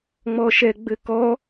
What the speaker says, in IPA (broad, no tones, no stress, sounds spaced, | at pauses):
ŋ͡m ɔ ʃ ɛ ɡ͡b ɘ k ɔ